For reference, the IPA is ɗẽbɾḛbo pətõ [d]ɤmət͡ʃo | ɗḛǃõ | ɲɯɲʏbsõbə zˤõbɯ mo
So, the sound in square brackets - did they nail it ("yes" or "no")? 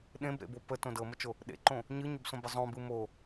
yes